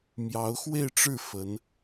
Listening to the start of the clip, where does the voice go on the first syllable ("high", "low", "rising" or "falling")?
rising